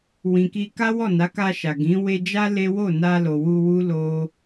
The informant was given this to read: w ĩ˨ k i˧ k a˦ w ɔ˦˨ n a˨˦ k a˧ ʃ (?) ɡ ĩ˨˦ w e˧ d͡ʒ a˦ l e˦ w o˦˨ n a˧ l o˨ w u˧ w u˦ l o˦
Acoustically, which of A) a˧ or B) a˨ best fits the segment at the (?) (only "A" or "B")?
B